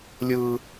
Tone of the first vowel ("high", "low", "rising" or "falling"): high